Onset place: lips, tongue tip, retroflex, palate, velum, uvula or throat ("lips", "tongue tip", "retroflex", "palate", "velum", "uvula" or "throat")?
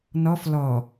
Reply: tongue tip